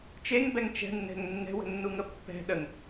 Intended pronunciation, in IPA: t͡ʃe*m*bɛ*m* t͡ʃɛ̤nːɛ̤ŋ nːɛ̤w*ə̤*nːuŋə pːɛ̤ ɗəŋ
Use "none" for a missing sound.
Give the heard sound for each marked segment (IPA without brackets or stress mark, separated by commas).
ŋ, ŋ, ə̤